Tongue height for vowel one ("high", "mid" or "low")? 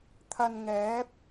low